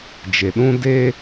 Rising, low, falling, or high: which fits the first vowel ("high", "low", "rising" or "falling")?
low